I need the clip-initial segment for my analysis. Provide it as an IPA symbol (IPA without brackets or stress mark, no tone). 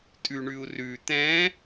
tʼ